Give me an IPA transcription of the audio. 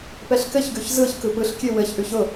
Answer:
pɛɬkɘçɡʉç zɯç kɯpɯɬkʲʉ wɘçʔʉç ʊ

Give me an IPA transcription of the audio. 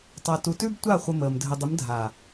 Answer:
tˤa˨tu˨tʉ˦btʷa˦˨ χʷə˧məː˨m dʱə˨dˤɪ˨˦mdʱa˨

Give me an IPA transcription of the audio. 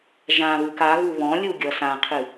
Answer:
ʒãβɨk aɣu βɔ̃lʲu ɡʲʌsãqʰɨ

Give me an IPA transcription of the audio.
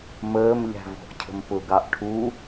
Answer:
məːmʎæ̤ vɔ̤ʔcʰə̤mpʊɡɑʔ ʈʰu

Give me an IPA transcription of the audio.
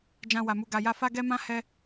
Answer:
d͡ʒã˧wa˨mu˧ ɡa˨ja˧ fa˦ɡɛ˦mã˦ hɛ˦

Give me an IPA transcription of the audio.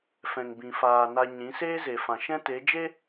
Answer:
fɛ̃˨ŋbĩ˨faː˨ na˧ɲĩ˨˦ seː˦ze˨fã˨ ʃɛ̃˦te˨˦ d͡ʒe˦

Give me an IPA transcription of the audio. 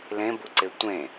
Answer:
lẽbuǀe tʷẽ

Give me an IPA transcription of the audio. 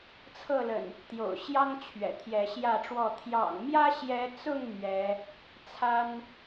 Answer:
t͡sʰɤ˥˨lə̰˨˩n | t̪jo̰˨˩ʊ̯ɕjɑ˦ŋ t͡ɕʰɥɛ̰˨˩t̪ʰjɛ˨˦ɕjä˥˨ʈ͡ʂwɔ˥˨ t̪ʰjɑ̰˨˩ŋmjä˦ɕjɛ˨˦t͡sʊ˥˨ŋ mɥɛ˨˦ | t͡sʰa˦n

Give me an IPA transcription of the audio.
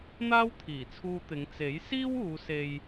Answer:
n̪aː˥wt̪ʰiː˨˩t͡sʰuː˧t̪ɪ˨˧ŋ t͡se˨˥jsiː˥wuː˨˧ se˧j

